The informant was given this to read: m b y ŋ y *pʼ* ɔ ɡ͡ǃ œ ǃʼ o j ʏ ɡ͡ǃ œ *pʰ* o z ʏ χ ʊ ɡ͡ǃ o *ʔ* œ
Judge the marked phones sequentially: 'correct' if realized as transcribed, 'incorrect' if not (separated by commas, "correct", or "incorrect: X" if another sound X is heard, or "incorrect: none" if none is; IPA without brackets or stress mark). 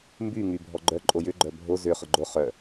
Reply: incorrect: bʱ, incorrect: bʱ, incorrect: χ